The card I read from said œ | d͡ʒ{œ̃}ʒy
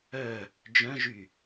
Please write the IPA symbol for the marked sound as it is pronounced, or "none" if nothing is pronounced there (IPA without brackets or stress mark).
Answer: œ̃